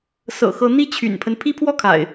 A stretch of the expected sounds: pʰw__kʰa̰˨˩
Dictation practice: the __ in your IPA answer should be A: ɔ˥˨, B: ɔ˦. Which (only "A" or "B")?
A